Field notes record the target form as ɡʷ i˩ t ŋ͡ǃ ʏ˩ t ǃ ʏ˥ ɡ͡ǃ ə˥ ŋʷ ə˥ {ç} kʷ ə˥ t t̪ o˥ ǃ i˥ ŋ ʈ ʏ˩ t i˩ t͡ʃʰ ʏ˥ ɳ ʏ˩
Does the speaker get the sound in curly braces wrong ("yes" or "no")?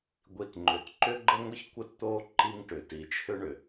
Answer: no